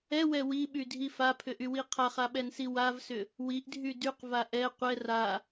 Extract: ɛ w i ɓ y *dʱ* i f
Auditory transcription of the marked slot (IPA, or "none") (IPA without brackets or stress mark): dʱ